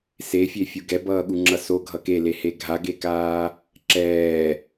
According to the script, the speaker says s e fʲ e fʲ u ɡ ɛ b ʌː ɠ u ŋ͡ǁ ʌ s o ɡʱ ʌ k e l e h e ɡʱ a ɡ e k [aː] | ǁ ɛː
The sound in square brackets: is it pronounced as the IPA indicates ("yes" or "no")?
yes